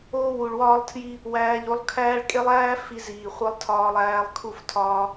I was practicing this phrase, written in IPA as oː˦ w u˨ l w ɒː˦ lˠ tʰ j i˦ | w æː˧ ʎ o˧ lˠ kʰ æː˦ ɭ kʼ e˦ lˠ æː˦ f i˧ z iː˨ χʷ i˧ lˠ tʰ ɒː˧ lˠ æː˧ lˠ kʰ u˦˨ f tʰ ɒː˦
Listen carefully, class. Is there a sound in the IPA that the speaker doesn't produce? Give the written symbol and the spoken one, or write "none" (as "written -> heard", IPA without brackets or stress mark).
l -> ɭ